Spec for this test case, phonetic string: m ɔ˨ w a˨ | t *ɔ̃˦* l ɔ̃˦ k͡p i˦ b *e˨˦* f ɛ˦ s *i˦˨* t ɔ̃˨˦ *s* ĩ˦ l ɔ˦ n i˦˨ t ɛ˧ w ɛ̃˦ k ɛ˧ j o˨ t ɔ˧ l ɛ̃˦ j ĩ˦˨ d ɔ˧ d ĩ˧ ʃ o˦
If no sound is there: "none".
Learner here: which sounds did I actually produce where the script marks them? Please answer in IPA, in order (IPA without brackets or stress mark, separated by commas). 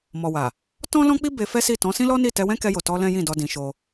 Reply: ɔ̃˦, e˧, i˦˨, s